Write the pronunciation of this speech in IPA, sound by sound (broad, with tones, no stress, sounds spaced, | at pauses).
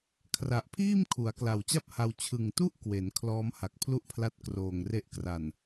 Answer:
kʰ r a˨˩ ʔ pʰ iː˥˩ m kʰ u˩˦ a̯ k l a˨˩ w t͡ɕ a˥˩ p̚ h a˧ w t͡ɕʰ ɯ˨˩ ŋ t u˥˩ ʔ k w e˩˦ n kʰ l ɔː˦˥ m h a˨˩ k̚ pʰ l u˥˩ ʔ pʰ l a˦˥ t̚ k r oː˨˩ ŋ r e˦˥ ʔ k r a˨˩ n